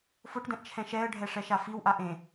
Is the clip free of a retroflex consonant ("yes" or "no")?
no